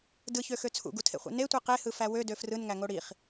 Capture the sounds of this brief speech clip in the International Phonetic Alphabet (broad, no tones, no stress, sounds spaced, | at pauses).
d ɯ ç ø x ø t͡sʰ ṵ ɡ u tʰ ḛ χʷ ḛ n e tʷ i q e h ɯ f æ w ø d ø f r ɯ n ŋ æ ŋ o ɽ i χ